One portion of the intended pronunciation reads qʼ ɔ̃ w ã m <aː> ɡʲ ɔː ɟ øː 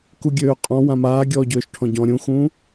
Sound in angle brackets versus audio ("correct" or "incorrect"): correct